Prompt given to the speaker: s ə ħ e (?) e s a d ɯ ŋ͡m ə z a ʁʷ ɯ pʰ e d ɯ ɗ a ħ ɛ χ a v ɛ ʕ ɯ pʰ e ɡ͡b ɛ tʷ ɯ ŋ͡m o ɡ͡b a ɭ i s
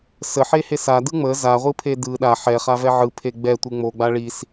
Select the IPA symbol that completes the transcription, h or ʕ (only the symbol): h